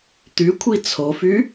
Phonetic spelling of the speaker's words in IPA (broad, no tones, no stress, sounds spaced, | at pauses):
t̪ y kʷʰ i t͡sʰ o f y